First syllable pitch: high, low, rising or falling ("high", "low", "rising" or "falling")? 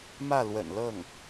falling